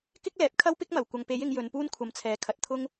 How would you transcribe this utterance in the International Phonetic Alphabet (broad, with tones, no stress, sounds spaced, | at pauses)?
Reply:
k ɪ˥ k̚ l ɛː˨ p̚ kʰ ɐ˥ w p ɪ˥ k̚ m ɐ˨˩ w kʷ ɐ˨ ŋ p e˨˥ j ɪ˨˧ ŋ j ɵ˨˧ n p uː˥ n kʷʰ ɐ˨˧ m t͡sʰ ɛː˨˥ kʰ ɐ˨ t̚ t̪ʰ ʊ˥ ŋ